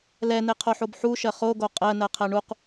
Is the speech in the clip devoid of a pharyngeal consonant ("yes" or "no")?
no